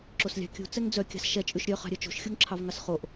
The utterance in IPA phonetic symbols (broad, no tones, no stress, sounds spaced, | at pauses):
ǁ o s lʲ ɑ̤ kʲ ṳ t͡s ɛ ŋ d͡z œ kʲ ɑ̤ s ʃ ɛ t͡ʃʼ ʉ ʃ ɾʲ œ χ ɑ̤ ɾʲ œ t͡ʃ o̤ ʃ xʲ o ŋ ǁʰ ɑ v ŋ ɑ s χ o ʔ